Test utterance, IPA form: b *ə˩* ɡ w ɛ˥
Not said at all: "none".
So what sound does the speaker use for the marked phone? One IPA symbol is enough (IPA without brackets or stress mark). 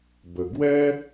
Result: ə˩